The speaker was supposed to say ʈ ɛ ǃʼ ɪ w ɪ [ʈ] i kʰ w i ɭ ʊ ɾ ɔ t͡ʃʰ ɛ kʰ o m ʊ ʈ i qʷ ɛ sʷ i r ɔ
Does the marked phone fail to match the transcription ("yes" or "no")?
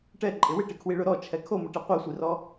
no